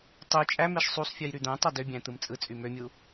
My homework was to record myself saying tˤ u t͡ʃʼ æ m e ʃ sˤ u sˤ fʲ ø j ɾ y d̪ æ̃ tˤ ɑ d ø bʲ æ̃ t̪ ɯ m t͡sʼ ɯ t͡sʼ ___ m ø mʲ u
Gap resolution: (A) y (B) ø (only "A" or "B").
A